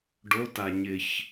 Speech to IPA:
ɖ o t a ɲ ɪ ç

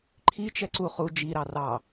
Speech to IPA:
ǃʰ i t͡ʃ ɛ ǀ u χ u d͡ʒ i ɾ ɑ r ɑ

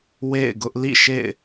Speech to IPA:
w ḛ˦˨ ɪ̯ ɡ ʊ˦ ʔ l ḭ˦˨ ʃ ḛ˦˨ ɪ̯

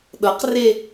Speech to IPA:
ɗ ɤ q r e

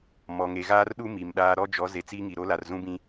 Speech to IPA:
m ɔ˨ ŋ e˨ ɣ aː˦ r ɗ u˦ m i˨ m ɗ aː˦ ɾ ɔ˦ d͡ʒ ɔ˨˦ z e˨ t͡s iː˦ ŋ i˨ ɾ o˦ l a˨ r z ũ˦ b ĩ˦

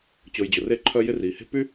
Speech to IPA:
t͡ɕ ʊː˨ j d͡ʑ ʊ˩ r e˦ ǃʰ œ˦ j ɪ˦ r iː˩ h e̤˥ p y˥

